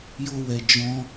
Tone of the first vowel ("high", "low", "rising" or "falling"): high